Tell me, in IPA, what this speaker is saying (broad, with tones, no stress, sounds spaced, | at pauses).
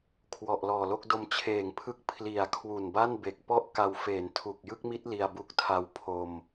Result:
kʰ w ɔ˨˩ ʔ l ɔː˨˩ l o˥˩ k̚ d o˧ m t͡ɕʰ eː˨˩ ŋ pʰ ɯ˦˥ k̚ pʰ l i˨˩ a̯ kʰ w u˨˩ n b a˥˩ n b e˨˩ k̚ p ɔ˥˩ ʔ k a˧ w f eː˩˦ n tʰ u˨˩ k̚ j ɯ˥˩ k̚ m i˦˥ t̚ l i˧ a̯ b u˦˥ k̚ tʰ a˧ w pʰ o˧ m